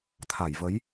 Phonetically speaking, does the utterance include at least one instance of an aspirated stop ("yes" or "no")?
yes